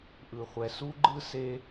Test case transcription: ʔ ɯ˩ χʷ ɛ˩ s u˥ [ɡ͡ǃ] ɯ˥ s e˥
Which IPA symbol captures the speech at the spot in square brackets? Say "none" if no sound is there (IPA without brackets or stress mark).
ɡ͡ǃ